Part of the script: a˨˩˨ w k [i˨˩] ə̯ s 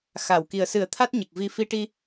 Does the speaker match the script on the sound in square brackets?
yes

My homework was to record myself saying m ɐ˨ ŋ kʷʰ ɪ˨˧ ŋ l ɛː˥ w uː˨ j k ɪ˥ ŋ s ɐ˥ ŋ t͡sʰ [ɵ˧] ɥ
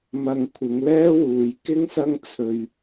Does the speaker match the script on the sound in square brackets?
yes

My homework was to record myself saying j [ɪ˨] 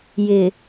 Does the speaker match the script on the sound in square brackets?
yes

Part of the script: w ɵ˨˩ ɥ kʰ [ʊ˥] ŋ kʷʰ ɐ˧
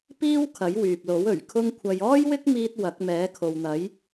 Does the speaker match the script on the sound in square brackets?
yes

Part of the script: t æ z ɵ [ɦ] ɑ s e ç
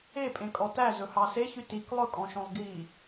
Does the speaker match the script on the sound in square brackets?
no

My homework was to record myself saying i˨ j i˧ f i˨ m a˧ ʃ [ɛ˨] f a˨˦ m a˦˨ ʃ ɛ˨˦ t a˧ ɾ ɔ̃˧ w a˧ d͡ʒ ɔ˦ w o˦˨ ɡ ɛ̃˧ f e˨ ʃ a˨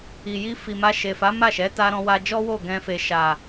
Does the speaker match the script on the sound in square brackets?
no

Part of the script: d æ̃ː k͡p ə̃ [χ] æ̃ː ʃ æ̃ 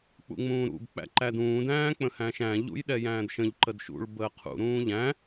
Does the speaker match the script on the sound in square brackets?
no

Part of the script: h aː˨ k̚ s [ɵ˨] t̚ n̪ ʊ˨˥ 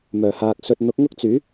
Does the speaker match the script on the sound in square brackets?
yes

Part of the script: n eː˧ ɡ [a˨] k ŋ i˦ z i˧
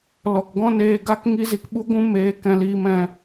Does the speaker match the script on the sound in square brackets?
no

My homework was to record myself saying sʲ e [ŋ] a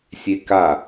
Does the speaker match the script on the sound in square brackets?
no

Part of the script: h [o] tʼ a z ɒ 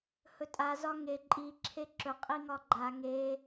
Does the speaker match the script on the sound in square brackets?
no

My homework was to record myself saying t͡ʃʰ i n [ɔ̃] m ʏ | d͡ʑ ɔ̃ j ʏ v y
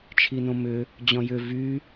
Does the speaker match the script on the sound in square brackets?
no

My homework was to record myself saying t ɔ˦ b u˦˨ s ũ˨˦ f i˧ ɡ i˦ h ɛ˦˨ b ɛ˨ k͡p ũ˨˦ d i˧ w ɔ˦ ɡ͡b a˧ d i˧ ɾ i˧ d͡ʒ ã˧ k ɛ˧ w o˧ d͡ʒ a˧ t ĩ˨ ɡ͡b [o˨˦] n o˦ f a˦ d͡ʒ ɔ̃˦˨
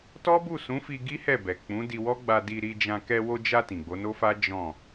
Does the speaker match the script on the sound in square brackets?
yes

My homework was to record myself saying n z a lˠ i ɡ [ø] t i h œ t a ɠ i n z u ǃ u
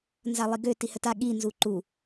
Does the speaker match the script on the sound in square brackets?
yes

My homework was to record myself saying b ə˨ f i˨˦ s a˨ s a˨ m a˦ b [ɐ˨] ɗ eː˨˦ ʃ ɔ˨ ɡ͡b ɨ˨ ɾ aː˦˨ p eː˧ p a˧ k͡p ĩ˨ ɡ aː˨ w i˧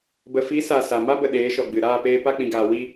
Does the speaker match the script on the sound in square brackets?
no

